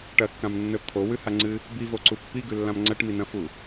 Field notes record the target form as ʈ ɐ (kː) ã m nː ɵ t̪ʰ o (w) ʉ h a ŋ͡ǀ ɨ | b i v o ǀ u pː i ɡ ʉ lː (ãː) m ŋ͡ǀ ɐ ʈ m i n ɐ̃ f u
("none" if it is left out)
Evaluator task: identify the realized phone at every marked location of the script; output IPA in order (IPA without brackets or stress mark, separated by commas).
kː, w, ã